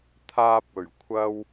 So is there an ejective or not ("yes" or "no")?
no